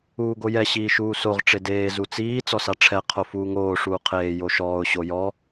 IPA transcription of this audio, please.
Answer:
uː ɡ o j ɛ ɕ iː ʃ uː s o ʁ ʈ͡ʂ e d eː z u t͡s iː t͡s ɔ s a ʈ͡ʂʰ ɛ qʰ o f uː ŋ oː ʂ uː qʰ eː j o ʃ ɔː ʊ̯ ɕ o j ɔ

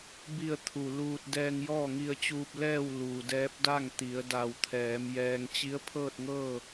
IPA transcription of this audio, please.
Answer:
b i˥˨ ə̯ t̪ʰ u˧˩ l uː˧ t̚ d ɛː˧ ŋ j ɔː˥˨ ŋ i˧ ə̯ t͡ɕ uː˧ p̚ l ɛː˥˨ w l uː˩ d ɛː˧˥ p̚ d a˥˨ ŋ t̪ i˩˧ ə̯ d a˧˩ w t̪ʰ ɛː˩˧ m j ɛː˧ ŋ t͡ɕ i˧˥ ə̯ pʰ ɤː˥˨ t̚ ŋ ɤː˥˨

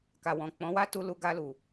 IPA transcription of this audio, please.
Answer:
k a˨ w ɔ̃˨ k͡p ɔ̃˨˦ w a˦ t u˧ l u˧ ɡ a˧ l u˨

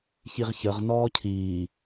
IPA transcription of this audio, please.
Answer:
ç i ʁ ç ə ʁ n ɔː cʰ iː

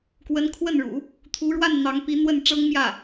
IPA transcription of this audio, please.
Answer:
k w ə˧˥ n kʰ w ə˥˩ n ɻ ṵ˨˩˦ | t̪ʰ u˧˥ ɻ w a˥˩ n n̪ ɑ˧˥ ŋ p i˧˥ n̪ w ə˥˩ n ʈ͡ʂ ɤ˥ ŋ m j ä˥˩

